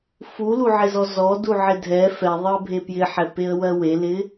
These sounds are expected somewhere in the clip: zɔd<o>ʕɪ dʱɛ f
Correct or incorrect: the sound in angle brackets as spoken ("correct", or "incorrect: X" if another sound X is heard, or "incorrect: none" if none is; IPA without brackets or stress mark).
incorrect: u